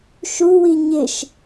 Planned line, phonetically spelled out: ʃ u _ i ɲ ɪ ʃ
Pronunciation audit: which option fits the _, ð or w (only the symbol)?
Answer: w